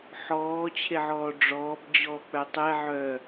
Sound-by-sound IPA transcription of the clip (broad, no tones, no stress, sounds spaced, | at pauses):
ħ ɔː t͡ɕʰ e ʕ ɔː ɖ͡ʐ ɔː b d͡ʑ ɔː k͡p œ tˤ ɛ ʕ œ